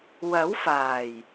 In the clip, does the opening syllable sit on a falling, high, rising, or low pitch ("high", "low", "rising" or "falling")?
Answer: rising